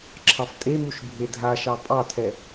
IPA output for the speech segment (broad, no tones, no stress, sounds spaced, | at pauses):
ǁʰ ɑ f tʼ e m u ʃ bʱ e dʱ a ʃ ɑ pʼ ɑ tʰ ɛ